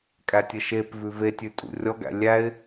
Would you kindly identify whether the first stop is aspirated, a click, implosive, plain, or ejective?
ejective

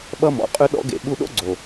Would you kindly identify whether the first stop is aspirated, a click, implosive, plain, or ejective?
implosive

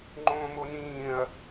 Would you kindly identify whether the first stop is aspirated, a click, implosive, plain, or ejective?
click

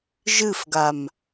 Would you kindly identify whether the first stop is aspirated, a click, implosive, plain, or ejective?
plain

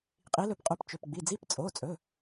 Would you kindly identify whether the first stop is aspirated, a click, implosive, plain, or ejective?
ejective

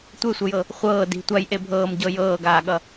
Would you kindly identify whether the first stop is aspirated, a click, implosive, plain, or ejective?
plain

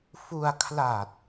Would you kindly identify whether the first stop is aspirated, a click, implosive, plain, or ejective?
aspirated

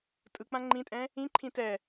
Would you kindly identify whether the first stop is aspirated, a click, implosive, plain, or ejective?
ejective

